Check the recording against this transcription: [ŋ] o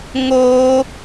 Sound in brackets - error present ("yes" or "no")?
no